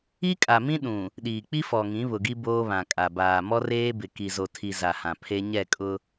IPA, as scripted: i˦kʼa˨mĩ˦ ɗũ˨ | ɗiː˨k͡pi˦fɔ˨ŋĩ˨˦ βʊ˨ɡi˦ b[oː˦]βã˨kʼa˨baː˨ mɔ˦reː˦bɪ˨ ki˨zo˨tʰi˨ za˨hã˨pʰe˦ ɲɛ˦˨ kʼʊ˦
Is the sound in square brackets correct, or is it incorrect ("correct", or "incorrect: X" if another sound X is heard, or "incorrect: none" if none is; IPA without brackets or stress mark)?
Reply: correct